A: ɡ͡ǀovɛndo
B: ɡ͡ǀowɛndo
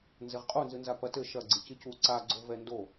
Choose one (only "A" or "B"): A